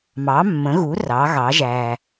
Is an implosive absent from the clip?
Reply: yes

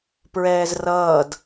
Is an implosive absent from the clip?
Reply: yes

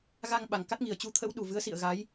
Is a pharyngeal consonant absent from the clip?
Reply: yes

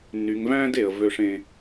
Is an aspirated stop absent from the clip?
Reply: yes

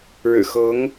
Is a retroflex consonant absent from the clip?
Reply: no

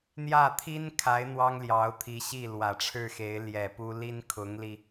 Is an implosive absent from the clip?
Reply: yes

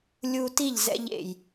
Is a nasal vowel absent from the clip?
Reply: yes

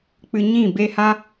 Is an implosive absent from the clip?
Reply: yes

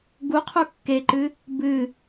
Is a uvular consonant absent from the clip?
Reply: no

